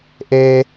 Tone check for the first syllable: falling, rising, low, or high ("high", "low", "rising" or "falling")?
low